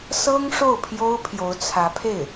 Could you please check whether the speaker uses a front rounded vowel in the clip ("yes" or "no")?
no